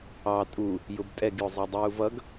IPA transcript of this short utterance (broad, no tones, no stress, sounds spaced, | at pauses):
ɑ tʼ u | j ʊ b tʼ ɛ ɡ j ʊ zˤ ɑ dˤ uː v ʌ ɡ